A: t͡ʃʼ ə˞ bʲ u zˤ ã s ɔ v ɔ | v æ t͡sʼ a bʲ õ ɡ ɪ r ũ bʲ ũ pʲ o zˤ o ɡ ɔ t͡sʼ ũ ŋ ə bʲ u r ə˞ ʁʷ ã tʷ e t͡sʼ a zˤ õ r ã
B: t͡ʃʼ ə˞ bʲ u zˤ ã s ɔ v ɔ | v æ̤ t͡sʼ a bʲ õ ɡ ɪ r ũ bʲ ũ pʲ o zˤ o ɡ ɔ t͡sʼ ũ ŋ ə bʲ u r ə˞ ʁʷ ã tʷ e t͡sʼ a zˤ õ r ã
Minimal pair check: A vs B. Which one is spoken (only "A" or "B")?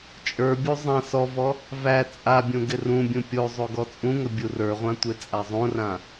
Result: A